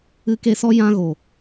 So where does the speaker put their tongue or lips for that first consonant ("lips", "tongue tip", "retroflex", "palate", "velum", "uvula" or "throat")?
velum